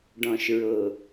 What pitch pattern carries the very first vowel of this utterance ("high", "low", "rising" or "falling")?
low